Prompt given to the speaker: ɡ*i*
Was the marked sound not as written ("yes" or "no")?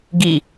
no